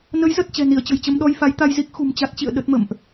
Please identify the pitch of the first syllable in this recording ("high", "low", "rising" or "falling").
rising